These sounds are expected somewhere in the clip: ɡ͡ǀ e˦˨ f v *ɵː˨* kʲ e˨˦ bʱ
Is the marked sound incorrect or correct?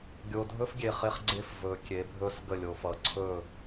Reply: correct